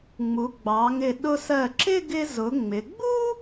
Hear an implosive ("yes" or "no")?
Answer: yes